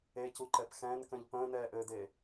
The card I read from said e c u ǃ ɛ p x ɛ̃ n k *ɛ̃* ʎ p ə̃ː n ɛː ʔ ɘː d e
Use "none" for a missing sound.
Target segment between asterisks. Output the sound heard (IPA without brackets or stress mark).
ə̃